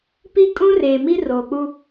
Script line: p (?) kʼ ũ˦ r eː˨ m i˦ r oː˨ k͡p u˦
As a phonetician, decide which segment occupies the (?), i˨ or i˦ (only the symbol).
i˦